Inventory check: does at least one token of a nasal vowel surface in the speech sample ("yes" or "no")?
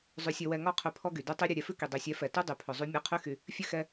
no